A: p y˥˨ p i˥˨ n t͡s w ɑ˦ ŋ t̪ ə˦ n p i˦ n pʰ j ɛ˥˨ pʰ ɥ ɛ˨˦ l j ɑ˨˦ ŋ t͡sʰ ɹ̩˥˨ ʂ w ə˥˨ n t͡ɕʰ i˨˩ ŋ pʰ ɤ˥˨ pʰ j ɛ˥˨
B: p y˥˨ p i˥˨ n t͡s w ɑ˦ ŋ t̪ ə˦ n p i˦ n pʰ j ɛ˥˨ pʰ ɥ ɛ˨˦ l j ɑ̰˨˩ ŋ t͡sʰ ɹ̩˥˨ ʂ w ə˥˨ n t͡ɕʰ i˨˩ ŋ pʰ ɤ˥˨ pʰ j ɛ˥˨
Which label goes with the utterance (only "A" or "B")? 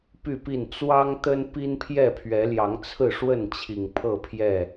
A